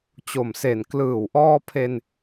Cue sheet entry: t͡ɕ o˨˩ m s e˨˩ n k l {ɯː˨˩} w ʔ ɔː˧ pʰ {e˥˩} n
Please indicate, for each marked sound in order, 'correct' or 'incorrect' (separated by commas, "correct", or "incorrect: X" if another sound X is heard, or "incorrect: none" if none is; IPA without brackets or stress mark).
correct, incorrect: e˧